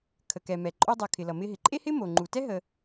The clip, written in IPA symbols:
kʰ ə˩ k ɛ˩ m ɛ˩ ǃʼ o˧ dˤ ʌ˩ kʰ ɪ˩ l ʌ˩ m ɪ˧ ɦ ɪ˩ ǃʼ e˥ h ɪ˥ m o˩ ŋ͡ǃ u˩ t ɛ˥ ɦ ə˧

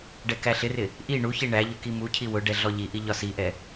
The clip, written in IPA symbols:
ɖ ɛ k æ ɬ ɪ r ɪ | ʔ i ɳ u ç i ɳ æ ʎ ʊ k i m u cʰ i w ʊ ɖ ɛ ɮ ɔ ʎ i ʔ i ʎ ɒ s i ʔ ɛ

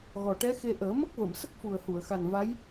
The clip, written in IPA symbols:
ɣ ɔ˨˩ ʈ ɛ˧˥ x e˧ ʔ əː˨˩˦ m ə˦˥ k̚ v ə˨˩˨ m s ə˦˥ k̚ f u˨˩ ə̯ h u˨˩˨ ə̯ x a˨˩ n v a˧˥ j

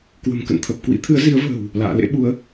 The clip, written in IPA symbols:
k w ə̤˨˩ m k ə̰˧˨ n t̪ʰ ə˨˩ p̚ k w ḭ˧˥ t̪ʰ ɨ˨˦ ə̯ z i˨˦ ə̯ v ə̤ː˨˩ w | l a̰ː˧˨ l ḛ˧˥ ɓ u˨˦ ə̯

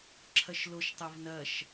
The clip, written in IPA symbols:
ǁʰ ɐ ʃ l o ʃ tˤ ɐ v n ɐ ʃ

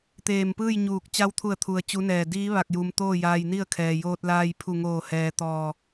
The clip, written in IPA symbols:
t̪ eː˧˩ m p ɯː˥˨ j ɲ uː˧˩ k̚ t͡ɕ a˧ w t̪ʰ u˧˩ ə̯ t̪ʰ u˩ ə̯ t͡ɕ u˧˥ n ɛː˧˩ d iː˧˥ ʋ a˧˩ k̚ j u˩ m t̪ oː˥˨ j aː˧ j n i˥˨ ə̯ kʰ ɛː˩ j oː˧ t̚ l aː˧ j pʰ u˧˩ ŋ oː˧˩ h ɛː˩ t̪ ɔː˧˩

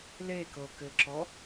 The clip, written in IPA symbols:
l e k ɤ k ɘ ǁ ɔ

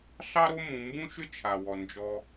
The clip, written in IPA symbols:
ɬ ɑ˥ ɾ o˥ m ũ˨ m b ũ˥ ʃ ʏ˥ t͡ʃʰ a˩ w ɔ˩ n d͡ʒ ɔ˨

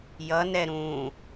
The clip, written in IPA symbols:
j ʌ n ɛ ɾ ũ

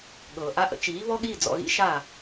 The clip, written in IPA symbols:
ɠ ɤː˩ ʔ a˧ ʔ ə̰˩˥ t͡ʃ iː˩˥ β ɔ˥ ɠ iː˥˩ d͡z ɔ̰˧ ɣ ḭ˥ ʃ a˥˩

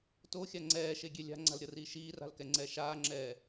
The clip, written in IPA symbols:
t o xʲ a ŋ͡ǀ ɛː ʃ e ɡʲ e lʲ a̤ ŋ͡ǀ a̤ l ɾʲ ʌ r iː ʃ iː r a̤ l k ɛ ŋ͡ǀ ɛː ʃ aː ŋ͡ǁ ɛː

